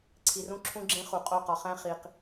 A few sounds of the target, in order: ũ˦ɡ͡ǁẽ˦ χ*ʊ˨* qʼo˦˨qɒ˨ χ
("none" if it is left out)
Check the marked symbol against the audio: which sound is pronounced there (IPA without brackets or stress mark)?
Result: u˨